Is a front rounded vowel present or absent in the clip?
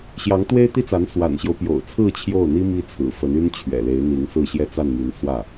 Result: present